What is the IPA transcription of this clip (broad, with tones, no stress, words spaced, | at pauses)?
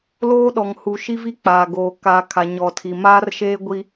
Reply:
loː˦ɗɔ˨ŋhu˨ ʃi˦vi˦k͡paː˨ɡoː˨ ka˨ kʰa˨ɲɔ˨tʰi˨maː˦r ʃeː˦ɡʷi˦